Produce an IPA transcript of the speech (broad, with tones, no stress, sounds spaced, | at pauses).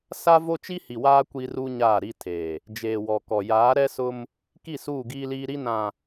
s a˦ v o˦ t͡ʃ i˦ h i˨ w aː˦ kʷ i˦ r u˦ ɲ aː˦˨ ɾ i˦ tʰ eː˨ | d͡ʒ eː˨ w ɔ˨ k ɔ˨ j aː˨˦ ɾ ɛ˦ s ʊ˦ m | k i˦˨ s uː˦˨ ɡ iː˦ l iː˦ ɾ i˦ n ã˨